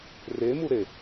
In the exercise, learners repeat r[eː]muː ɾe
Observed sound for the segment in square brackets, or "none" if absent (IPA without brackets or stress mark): eː